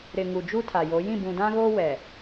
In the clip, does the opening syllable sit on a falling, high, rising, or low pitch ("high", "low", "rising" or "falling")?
low